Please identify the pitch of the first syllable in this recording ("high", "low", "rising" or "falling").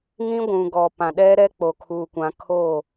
high